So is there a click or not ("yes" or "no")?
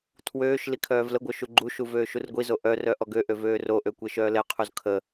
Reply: yes